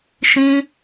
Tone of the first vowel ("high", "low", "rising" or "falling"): high